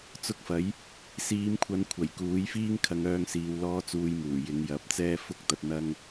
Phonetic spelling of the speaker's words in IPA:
t͡s ʊ˧ k̚ f ɐ˨˥ j | s iː˨˧ m kʷʰ ɐ˨˧ n kʷʰ ɐ˨˩ j k uː˨˥ j f iː˥ ŋ kʰ ɐ˧ ŋ œː˧ ŋ s iː˨ w l ɔː˥ t͡s uː˧ j m uː˨˩ j ɪ˨˧ ŋ j ɐ˨˥ p̚ t͡s ɛː˥ f ʊ˥ k̚ t̪ ɐ˧ t̚ n̪ ɐ˥ ŋ

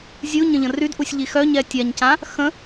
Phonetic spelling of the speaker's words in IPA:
zʲ u ɲ ə̃ ʎ ə̃ r y d ʔ u sʲ ʎ i x œ ɲ ɛ tʲ a ɲ c ã | x ə̃

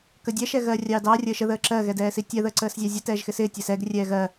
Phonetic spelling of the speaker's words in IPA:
k əː dʲ ɛ ʃ ɛ ɣ ɜː rʲ ɑː d ɑː rʲ əː ʃ ə ð əː ǁ ɜ ɣ ɛ d ɛː s i tʲ ɜ ð əː ǀ əː s zʲ ɑ zʲ ə t ɛː ʒ x ɪ s ɪː tʲ ɛ s ɛ ɡ rʲ ɛː ɣ ɜ

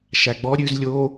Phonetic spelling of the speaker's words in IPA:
ʃ æ ɡ͡b ɔ ɾʲ ʉ z lʲ o

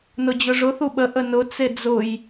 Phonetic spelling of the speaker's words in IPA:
n ʊ d͡ʑ ʊ ʐ ʊ θ u ɓ ə ʔ ə n ʊ t͡s e d͡z ʊ j

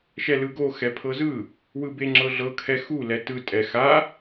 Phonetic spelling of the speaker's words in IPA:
ʃ ɛ l ɯ ɡ o x ɛ pʰ ɤ z ɯ | w ɯ b e ŋ͡ǁ ɤ ɮ ɤ kʰ ɛ x u l ɛ t ɯ tʼ ɛ x a

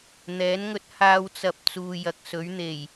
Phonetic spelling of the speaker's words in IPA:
n̪ ɛː˨˥ n ŋ ɵ˧ t̚ h aː˧ w t͡s ɐ˨ p̚ t͡s uː˨ j ɐ˨ k̚ s ɵ˨˥ ɥ n̪ e˨˩ j

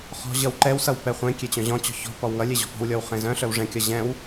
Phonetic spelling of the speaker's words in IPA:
χ ɔ̤ ʑ ʌ w ǃ ɛ w s ʌ w p ɛ χʷ ẽ kʲ e t͡ɕ œ̃ ʑ ɔ̃ t͡ɕ ɔ̤ ç ɔ̤ p ɔ w ŋ ʌ lʲ e ʑ ɔ̤ p ɔ̤ w lʲ ɔ w χ ẽ z œ̃ ɬ œ w ʐ ɛ̃ kʲ ʌ ʑ ɛ̃ w

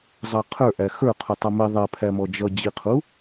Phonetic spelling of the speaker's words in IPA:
zˤ ɑ qʰ ə˞ ʔ æ x ə˞ qʰ u tˤ ʌ m i ðˤ ɛ pʰ æ m ɔ d͡ʒ ʌ d͡ʑ i qʰ u

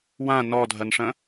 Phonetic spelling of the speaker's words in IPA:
w ã n ɔ dʱ ɐ n ʂ ɐ̃

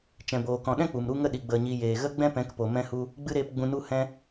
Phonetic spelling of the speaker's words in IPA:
t͡ʃ ɛ̃˨ b oː˨ k ɔ̃˨ ɗ ɛ̃˦ k͡p u˨ m ɾ u˦ ŋ ə˦ ɗ i˨ ɡ͡b ə˨ ɲ i˨ j eː˨ ɣ ə˦ ɡ͡b ɛ̃˦ p ɛ̃˨˦ k p o˨ m ɛ̃˧ h u˧ | ɡ͡b ɨ˦ ɾ eː˦ p ɡ͡b ũ˧ n u˦ h ɛ̃˧

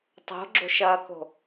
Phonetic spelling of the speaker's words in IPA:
tˤ o̤ ɡ͡ǁ o̤ ʃ ɐː k o̤

